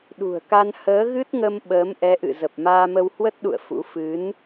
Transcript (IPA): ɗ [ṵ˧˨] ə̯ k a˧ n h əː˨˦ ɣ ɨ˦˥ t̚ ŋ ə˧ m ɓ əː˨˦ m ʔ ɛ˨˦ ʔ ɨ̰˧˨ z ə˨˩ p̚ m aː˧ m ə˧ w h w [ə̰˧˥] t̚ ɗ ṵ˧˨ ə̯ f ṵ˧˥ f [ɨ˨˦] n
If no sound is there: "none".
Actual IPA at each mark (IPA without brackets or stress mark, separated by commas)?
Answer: ṳ˨˩, ə˦˥, ɨ˨˦